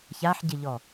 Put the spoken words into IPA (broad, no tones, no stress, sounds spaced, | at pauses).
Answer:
ç a ħ ɟ ɪ ʎ ɔ